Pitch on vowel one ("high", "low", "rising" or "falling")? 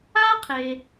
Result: high